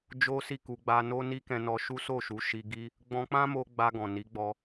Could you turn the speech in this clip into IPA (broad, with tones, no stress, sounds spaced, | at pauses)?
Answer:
d͡ʒ o˦ s i˦˨ k u˧ ɡ͡b a˧ n o˦ n i˦ k ɛ̃˧ n ɔ˧ ʃ u˦ s o˦˨ ʃ u˨˦ ʃ i˧ ɡ i˦ | ɡ͡b ɔ̃˧ k͡p ã˦ m o˧ ɡ͡b a˧ ɡ ɔ̃˨ n i˨˦ ɡ͡b ɔ˧